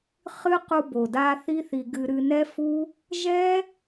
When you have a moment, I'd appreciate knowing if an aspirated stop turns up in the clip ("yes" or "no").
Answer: no